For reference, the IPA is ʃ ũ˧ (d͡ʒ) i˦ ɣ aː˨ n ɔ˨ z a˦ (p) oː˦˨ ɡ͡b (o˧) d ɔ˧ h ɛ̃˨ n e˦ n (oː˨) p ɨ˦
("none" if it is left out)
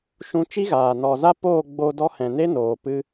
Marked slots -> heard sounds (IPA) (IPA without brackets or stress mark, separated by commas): t͡ʃ, p, o˧, oː˨